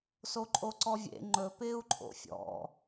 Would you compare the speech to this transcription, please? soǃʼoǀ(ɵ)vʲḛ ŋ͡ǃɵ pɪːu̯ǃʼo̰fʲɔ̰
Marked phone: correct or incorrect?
incorrect